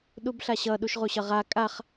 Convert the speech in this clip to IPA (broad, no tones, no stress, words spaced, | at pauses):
ɗubɬaɕʌ ɗuʃʁuɕʌʁa kʼaχ